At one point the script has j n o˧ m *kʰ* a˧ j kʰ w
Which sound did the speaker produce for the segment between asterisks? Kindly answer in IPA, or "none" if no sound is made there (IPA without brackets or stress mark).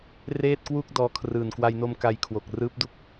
k